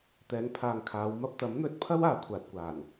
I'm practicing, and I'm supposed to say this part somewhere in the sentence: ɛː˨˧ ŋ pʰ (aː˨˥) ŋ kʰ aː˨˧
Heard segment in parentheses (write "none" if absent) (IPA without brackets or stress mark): aː˨